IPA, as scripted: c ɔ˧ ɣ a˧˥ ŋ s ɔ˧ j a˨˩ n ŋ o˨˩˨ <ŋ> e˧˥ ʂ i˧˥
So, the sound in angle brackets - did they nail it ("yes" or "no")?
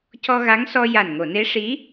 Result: no